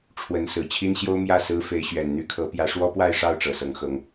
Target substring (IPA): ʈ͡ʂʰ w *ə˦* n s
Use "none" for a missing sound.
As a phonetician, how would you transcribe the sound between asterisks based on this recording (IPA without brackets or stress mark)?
ə˨˦